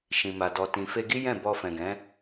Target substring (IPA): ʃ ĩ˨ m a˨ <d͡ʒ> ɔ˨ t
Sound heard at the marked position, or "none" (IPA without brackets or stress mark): d